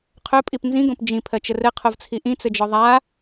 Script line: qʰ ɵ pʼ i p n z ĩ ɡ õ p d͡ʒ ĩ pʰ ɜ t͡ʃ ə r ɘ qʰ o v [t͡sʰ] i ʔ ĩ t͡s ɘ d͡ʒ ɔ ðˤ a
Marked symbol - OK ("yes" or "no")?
yes